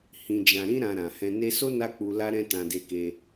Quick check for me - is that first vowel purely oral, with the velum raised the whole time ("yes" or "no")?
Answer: no